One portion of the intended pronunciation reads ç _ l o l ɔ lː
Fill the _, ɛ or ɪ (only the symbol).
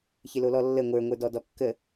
ɪ